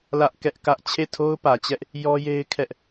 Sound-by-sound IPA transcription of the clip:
lä˦ʔ kɛ˦ʔkä˦ʔ t͡ɕʰe˦˨tʰo˦ʊ̯pä˨t͡ɕɛ˦ʔ | jɔ˦je˦ɪ̯ kʰɛ˦ʔ

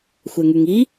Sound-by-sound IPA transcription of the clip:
xʷɛŋyŋi

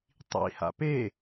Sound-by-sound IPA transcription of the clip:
tˤḭ ha̰pe

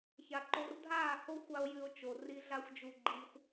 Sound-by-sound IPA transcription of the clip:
ça˨ǃo˧r dʱaː˦˨ho˦xʷa˧o̯ jʉ˧o̯t͡ʃo˨ri˦ ɮa˦xʷd͡ʒu˧ɡ͡ǃiː˧xʷ

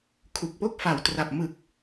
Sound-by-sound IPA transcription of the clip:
kʰu˨˩k̚po˥˩k̚fa˨˩wtra˨˩p̚ mɯ˨˩k̚

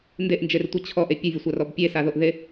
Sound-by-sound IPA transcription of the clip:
ndeʔnd͡ʒertʷe t͡ɕʰɔʔe pʲəvʲəsʷarɔb pʲesaðoʔðe

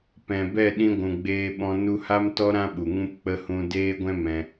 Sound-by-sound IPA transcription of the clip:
pɛ̃˨bɛ˦˨ɗĩ˧ ɡʷũ˨ɡ͡beː˧ɓɔ̃˧ nu˧ha˦mtɔ˦ ɾã˦ɓu˨ ŋũ˧p k͡pə˦ hũ˦ deː˦ɡʷɛ̃˦ mɛ̃˧

